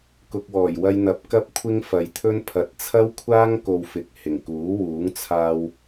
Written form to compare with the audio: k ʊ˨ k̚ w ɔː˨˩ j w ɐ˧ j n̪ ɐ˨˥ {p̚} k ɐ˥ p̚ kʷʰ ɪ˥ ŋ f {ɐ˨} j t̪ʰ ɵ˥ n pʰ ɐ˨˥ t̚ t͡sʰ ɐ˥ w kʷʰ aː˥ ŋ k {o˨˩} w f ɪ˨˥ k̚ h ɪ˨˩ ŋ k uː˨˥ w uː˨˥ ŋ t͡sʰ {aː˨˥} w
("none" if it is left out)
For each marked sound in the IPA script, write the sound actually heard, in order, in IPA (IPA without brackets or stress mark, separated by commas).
p̚, ɐ˨, o˧, aː˧